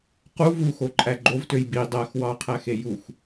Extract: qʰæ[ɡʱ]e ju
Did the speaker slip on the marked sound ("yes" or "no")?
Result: yes